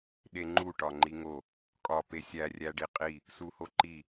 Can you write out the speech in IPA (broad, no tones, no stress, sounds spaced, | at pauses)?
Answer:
ɗ e ŋ͡ǃ u ʈ ɒ ŋ͡ǃ i ŋ o | kʼ ɒ p e sʲ æ rʲ æ ɖ i qʼ i | s u h o ǃ i